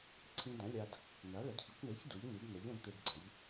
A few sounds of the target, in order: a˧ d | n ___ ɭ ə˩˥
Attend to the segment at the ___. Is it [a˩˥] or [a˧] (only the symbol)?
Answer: a˩˥